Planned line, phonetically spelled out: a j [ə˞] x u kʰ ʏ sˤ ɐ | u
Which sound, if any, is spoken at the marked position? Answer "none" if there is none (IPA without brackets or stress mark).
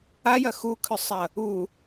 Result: ɐ